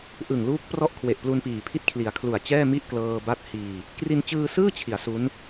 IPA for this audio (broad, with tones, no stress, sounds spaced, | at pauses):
ʔ ɯ˨˩ ŋ l uː˦˥ k̚ p r ɔ˥˩ ʔ kʰ w e˨˩ ʔ p l u˧ n p iː˨˩ pʰ i˥˩ t̚ kʰ l i˩˦ a̯ kʰ l u˨˩ a̯ t͡ɕ ɛː˥˩ m i˥˩ ʔ k l ɤː˧ b a˦˥ t̚ h iː˧ | k r i˧ n t͡ɕ ɯː˧ s ɯː˥˩ t͡ɕʰ i˩˦ a̯ s u˦˥ n